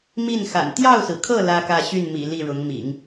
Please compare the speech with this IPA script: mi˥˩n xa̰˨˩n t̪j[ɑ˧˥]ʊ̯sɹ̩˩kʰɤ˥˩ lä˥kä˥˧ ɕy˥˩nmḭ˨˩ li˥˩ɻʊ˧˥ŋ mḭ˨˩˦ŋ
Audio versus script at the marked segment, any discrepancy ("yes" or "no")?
yes